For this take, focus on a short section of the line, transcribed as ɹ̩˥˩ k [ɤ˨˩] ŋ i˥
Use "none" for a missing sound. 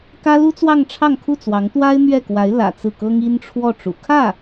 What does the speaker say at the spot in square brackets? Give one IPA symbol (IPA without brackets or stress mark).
ɤ˥